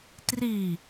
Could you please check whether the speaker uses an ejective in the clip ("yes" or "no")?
no